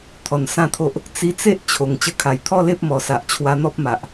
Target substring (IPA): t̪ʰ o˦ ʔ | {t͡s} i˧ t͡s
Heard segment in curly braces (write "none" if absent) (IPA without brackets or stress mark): t͡s